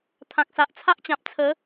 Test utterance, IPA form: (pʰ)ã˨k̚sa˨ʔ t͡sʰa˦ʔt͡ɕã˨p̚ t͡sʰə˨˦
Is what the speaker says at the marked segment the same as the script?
no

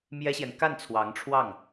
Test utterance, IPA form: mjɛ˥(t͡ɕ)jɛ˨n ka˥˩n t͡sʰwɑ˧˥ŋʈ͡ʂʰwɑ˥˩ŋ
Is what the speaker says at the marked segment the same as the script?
no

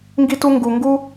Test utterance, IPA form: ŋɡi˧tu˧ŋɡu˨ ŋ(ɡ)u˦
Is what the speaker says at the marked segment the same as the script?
yes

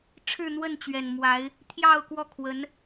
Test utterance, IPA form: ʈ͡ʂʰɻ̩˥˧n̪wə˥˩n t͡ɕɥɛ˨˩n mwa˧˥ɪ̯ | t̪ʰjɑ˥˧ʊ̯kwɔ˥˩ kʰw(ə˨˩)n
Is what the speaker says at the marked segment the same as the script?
no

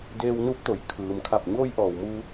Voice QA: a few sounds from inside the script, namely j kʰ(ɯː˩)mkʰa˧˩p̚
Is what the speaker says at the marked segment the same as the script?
yes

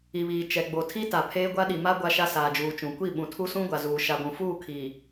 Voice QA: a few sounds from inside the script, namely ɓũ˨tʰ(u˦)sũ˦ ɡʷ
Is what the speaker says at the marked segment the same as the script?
yes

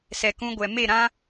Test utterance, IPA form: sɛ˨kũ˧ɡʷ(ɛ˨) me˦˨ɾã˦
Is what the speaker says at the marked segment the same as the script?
yes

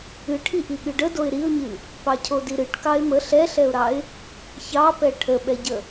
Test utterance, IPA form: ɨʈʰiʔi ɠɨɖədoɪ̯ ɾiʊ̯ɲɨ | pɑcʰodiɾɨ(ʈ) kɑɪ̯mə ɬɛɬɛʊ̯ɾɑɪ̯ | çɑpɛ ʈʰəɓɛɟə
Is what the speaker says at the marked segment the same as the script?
yes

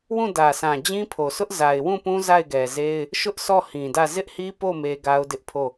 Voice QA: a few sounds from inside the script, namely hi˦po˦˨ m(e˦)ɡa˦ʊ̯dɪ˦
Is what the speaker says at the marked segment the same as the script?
yes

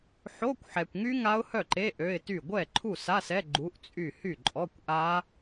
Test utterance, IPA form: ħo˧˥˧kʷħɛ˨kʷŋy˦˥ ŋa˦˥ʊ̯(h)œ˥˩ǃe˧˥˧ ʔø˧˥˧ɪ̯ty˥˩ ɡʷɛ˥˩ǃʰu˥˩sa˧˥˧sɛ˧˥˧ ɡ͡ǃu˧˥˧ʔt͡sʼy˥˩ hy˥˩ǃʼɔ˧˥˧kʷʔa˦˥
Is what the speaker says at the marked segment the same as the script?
yes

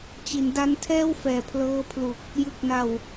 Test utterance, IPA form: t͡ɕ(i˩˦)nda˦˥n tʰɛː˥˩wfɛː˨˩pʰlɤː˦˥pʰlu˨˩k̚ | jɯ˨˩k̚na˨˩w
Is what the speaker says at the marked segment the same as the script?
yes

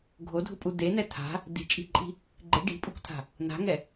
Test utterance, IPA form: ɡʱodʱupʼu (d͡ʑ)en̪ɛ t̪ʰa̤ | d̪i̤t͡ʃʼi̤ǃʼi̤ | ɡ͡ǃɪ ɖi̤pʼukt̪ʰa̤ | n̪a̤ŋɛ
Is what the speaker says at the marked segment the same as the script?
no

